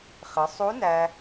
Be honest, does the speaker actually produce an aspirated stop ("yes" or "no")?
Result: no